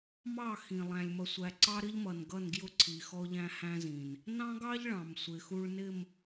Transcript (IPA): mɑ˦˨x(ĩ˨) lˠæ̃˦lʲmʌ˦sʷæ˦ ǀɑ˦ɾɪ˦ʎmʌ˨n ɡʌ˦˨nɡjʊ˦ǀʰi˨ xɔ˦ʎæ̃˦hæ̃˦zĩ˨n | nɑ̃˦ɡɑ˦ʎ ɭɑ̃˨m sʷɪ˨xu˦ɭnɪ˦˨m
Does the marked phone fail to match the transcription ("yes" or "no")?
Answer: no